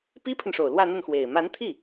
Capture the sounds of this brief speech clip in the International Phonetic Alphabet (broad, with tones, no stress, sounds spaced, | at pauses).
p i˥ pʰ ə˨ n ʂ o˨˩ ʊ̯ l w ä˥˧ n̪ ə˥˩ n x w e˨˩ ɪ̯ m a˧˥ n t̪ʰ i˥˩